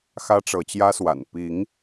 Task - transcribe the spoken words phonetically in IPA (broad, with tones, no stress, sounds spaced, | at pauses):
x ä˦ ʈ͡ʂ ɤ˨˦ t͡ɕ j ä˦ s w a̰˨˩ n p i˨˦ ŋ